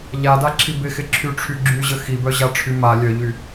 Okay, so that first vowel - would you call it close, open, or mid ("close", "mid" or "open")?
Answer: open